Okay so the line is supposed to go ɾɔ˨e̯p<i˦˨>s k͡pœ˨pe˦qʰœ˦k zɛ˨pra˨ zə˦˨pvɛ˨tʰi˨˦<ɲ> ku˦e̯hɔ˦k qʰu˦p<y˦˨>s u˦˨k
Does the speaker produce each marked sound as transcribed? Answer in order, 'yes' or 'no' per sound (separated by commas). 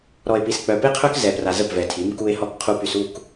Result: no, no, no